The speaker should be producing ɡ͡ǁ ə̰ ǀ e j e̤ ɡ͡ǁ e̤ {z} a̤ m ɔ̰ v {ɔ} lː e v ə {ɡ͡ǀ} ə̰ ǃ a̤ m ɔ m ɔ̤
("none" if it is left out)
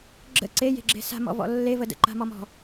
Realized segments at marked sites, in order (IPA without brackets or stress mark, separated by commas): s, ɔ̰, d